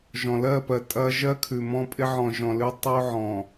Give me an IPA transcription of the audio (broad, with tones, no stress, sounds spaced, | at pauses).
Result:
ʒ ɔ̃˨ l ɜ˦˨ p ɜ˨ tʼ ɐ˦ ʒ ɜ˦ kʰ ʉ˨ m ɔ̃˦ pʼ ɪ˦ ʕ ɔ̃˨ ʒ ɔ̃˨ l ʉ˦ tˤ o˦ ʕ ɔ̃˨